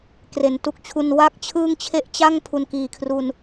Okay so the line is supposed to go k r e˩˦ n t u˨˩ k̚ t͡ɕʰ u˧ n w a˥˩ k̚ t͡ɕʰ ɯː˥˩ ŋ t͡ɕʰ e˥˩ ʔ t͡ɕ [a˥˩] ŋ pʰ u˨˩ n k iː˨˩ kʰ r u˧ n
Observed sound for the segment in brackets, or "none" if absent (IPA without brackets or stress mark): a˥˩